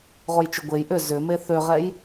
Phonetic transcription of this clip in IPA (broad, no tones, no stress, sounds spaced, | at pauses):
ʁ o j t͡ʃ ʏ ɡʷ e j ʔ ʏ z ʏ m e θ ø ʁ ɛ j